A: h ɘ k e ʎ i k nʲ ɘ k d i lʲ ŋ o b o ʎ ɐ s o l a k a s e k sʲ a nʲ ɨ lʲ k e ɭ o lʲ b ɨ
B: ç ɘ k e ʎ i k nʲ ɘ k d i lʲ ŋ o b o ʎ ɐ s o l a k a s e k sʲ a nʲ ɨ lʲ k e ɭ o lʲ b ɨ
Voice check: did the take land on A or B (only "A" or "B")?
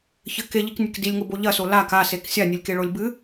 B